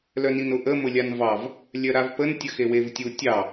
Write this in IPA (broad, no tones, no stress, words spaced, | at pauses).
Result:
lœninʊʔə mʊlʲanvɑv | lʲœɾavpən tʲəxewevtʲu tʲɑ